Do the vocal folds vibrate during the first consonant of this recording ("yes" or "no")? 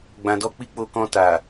yes